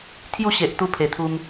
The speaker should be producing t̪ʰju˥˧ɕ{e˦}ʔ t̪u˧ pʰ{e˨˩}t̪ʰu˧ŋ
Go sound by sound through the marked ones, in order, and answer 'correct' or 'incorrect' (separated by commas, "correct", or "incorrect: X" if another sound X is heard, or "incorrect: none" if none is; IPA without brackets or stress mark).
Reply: incorrect: e˨, correct